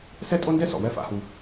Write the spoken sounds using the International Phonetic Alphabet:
s ɛ˦ tʼ o˦ n d ɛ˦ s ɔ̰˨ w ɛ˦ f a̰˦ h u˦

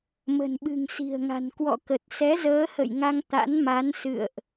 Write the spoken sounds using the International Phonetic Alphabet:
m ə̤˨˩ n ɓ ɨ̤˨˩ ŋ s i̤˨˩ ə̯ ŋ a̤˨˩ n k w ɔ̰˧˨ k ə˨˩ t̚ s ɛ˨˦ z əː˨˦ h ə̰˧˨ j ŋ a˧ ŋ t̪ a̰˧˥ n m a˨˦ n s ɨ̰˧˨ ə̯ ʔ

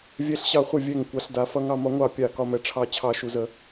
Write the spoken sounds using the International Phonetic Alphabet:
vʲ ɛ˦ ɬ ɕ ɑ˦ χʷ ə˥˨ vʲ ɛ˥˨ ŋ kʷ a˦ ɬ d a˦ f ʌ˦ ŋ ɑ˦ m ɒ˦ ŋʷ ɑ˥˨ pʲ a˥˨ k ɒ˦ m ɛ˦ ʈ͡ʂʰ ɑ˥˨ t͡ɕʰ ɑ˥˨ ʃ u˦ z ə˦

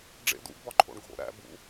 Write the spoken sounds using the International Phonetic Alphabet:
ɖ͡ʐ ḛ d ṵ ɡ b ɒ ǃʰ o̰ ɳ ɡʱ o̰ ɾ æ̰ b ṵ

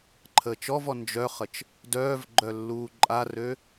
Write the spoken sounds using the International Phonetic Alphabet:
ǃʰ əː t͡ʃ ɔ v ɔ n d͡ʒ œ χ ə t͡ʃ | d œː v ɡ͡ǃ œ lː uː ǃʼ a r ø

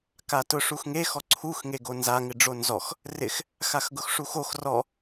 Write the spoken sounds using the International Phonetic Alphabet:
k a t ʊ ʂ u x ŋ e x ɔ ǀʰ u x ŋ e ɡ o n z a ŋ ɪ ɖ͡ʐ o n z ɔ x | r ɪ x | x a x ɡ ʊ x ʂ u x o x r ɔ

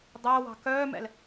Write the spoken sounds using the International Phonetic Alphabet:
dˤ æ w ɑ̤ k œː m ɛ̰ l

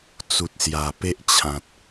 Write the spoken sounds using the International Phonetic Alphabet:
t͡s u˨ t̚ s j a˨˩ p e˦ ʔ t͡ɕʰ ã˨ t̚

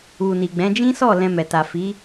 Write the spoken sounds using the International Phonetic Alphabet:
u˨ n i˨ ɡ͡b ɛ̃˨˦ d͡ʒ ĩ˦ s ɔ˦˨ l ɛ̃˧ m ɛ˨ t a˨ f i˨˦

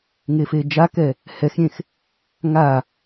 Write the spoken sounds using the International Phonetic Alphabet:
ŋ e f e d͡ʒ a k ɛ | h ɛ x ɾʲ ẽ x | ŋ a

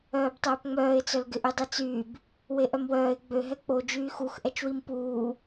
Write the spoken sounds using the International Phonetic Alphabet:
œː b tˤ œː p ŋ͡m œː ɪ̯ t͡s œ l ɡ ɪ ʔ y dˤ i t͡s yː b | w e ʔ œ m w œː ɪ̯ ɡ͡b ø ɦ ɛ k͡p o d͡ʒ yː x u x ʔ ɛ t͡ʃ w i m p uː

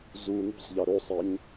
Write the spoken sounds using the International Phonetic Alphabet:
z u n ṳ sˤ ʎ æ ɾ o sˤ æ ɲ

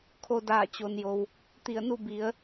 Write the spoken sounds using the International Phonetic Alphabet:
kʰ o˧ d aː˧˩ t͡ɕ o˩ n j o˩ w | t̪ i˧˩ ə̯ n u˥˨ b i˩˧ ə̯

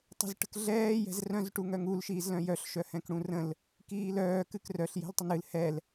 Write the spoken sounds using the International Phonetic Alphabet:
tˤ ə̤ z ʈ ə̤ k ɮ ɛː j ɛ̤ z r œ̃ z ʈ u ŋ œ ŋ u l ʃ iː z l œ̃ j œ ɬ ʃ œ h ɛ̃ k ɽ ũ r ə̃ l | k iː l œː k ɨ k r œ ɬ j ɛ̤ l tˤ ə n ɨ l h ɛ l

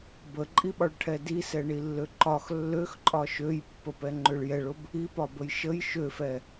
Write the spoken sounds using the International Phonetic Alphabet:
b ə ǃʼ i ɓ ɒ ɭ ʈʰ ɛ d i s ɛ ɳ i lː ø ǃ ɒ x lː ø x ǃʼ ɒ ʃ ø j pː ə p ɛ ŋ͡ǃ ø ɭ j ɛ ɭ ʊ b | i p ɒ b ə j ʃ ə j ʃ ø f ɛ

